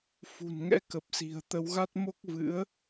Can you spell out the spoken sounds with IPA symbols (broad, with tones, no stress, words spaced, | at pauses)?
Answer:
fṳ˨˩n ŋɛ̰˧˥kə˨˩p̚ si̤˨˩ə̯t̪ə˨˦wɣa˦˥t̚ mo˦˥k̚vɨ̰˧˥ə̯